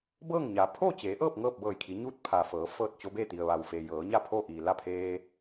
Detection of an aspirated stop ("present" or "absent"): present